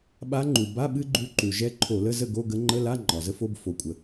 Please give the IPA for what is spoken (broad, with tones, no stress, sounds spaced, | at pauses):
ɓ a˧˥ ŋ͡ǃ u˩ b a˧˥˧ ɓ ɨ˥ ɡ͡ǃ u˧˥ ǃ u˩ ʒ ɛ˧˥ ǃʰ o˧˩˧ l ə˧˥˧ z ə˥˨ ɡ o˧˥˧ ɡ ə˧˥ ŋ͡ǃ ə˧˥˧ l a˧˥˧ ŋ͡ǃ ɒ˩ z ə˥ f o˧˥˧ b f o˩ kʷʼ ə˩